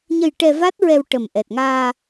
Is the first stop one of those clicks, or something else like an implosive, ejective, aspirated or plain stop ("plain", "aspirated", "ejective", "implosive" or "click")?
plain